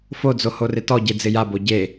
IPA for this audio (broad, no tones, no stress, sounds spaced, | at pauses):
f o d͡z o h o r ɪ t ɔ ɟ e d͡z ɪ j a b o ɟ e